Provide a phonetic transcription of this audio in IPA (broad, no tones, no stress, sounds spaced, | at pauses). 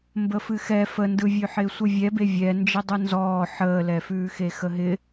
m b ə f ɨ x ɛ f ə n d ɯ vʲ ʉ ħ ɪː sʷ ɯ vʲ ɛ b e vʲ ɛ n d͡ʒ ɪ dˤ ɯ n z ɔː ħ əː l ɛ f ʉː x e x ə ɦ ɪ